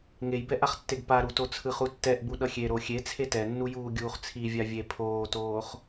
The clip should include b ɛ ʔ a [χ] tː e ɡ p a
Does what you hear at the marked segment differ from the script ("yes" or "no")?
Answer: no